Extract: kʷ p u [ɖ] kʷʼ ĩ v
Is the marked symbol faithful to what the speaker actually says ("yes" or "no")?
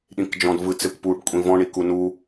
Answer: yes